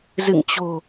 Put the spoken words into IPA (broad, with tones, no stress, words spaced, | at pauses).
zɨ̰˧˨ŋt͡ɕo̤˨˩